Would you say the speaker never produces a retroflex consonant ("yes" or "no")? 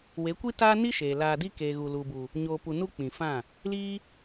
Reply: yes